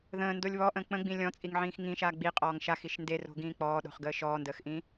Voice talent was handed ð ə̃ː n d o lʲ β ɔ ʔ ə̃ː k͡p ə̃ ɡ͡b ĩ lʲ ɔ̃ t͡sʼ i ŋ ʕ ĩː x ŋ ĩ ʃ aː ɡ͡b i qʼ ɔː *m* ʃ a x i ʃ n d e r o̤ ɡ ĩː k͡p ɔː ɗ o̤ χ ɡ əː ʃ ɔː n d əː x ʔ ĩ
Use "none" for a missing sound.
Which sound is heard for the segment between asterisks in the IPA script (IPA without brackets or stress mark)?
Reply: ŋ